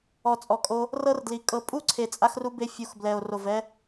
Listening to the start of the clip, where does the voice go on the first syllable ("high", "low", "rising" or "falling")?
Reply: low